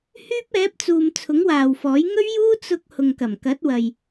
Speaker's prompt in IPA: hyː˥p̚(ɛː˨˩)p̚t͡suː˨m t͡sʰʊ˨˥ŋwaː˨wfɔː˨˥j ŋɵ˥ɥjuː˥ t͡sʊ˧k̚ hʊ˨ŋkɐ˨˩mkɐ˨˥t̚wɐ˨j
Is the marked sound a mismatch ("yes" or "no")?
yes